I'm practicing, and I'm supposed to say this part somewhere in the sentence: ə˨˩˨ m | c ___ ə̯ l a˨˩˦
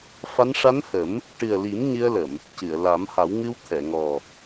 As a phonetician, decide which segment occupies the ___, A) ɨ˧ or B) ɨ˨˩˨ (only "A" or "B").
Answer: B